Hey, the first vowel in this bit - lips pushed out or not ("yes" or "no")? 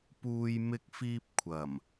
yes